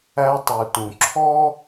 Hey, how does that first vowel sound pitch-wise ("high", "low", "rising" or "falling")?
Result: high